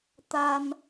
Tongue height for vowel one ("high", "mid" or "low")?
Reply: low